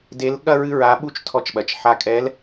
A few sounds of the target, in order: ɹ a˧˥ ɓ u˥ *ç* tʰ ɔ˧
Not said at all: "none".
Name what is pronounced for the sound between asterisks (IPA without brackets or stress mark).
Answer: t͡ʃ